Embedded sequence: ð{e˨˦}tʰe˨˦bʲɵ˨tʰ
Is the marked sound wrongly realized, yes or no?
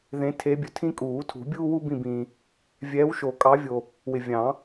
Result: yes